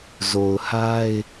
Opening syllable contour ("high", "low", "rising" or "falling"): low